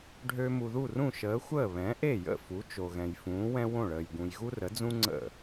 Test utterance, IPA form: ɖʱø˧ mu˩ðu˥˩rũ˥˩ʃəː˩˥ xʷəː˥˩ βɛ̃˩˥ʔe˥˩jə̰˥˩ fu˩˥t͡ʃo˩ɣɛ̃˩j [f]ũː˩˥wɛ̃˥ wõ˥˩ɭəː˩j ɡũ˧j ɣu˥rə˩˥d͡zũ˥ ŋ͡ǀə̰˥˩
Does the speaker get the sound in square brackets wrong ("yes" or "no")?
no